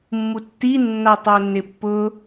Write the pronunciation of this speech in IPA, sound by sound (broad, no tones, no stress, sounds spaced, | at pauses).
mː u tː i nː a tˤ o nː ɪ pː ʊ